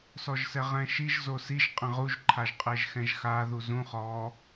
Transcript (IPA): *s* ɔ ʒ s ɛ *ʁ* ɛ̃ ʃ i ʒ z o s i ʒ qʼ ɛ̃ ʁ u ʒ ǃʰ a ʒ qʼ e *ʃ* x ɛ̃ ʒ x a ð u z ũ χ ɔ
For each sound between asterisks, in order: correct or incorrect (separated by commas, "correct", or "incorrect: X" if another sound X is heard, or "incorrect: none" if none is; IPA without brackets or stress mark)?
correct, correct, incorrect: ʒ